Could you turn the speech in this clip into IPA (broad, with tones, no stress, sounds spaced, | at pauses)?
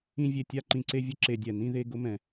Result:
ĩ˦ vʲ e˨ tʲ a˥ ǃ ĩ˨ ǀ e˥ vʲ ʊ˦ ǁ e˨ dʲ ɛ˩ n ĩ˥ ð e˥ ɡ ʊ˥ m ɛ̃˨